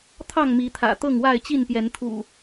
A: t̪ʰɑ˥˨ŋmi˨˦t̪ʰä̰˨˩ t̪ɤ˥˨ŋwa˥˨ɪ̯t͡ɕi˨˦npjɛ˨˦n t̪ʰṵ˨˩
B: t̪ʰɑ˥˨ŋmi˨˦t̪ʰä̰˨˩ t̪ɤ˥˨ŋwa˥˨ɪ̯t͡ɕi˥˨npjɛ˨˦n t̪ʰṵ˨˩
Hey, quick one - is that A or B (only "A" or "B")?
B